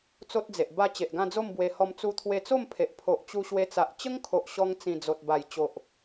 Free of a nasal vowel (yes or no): no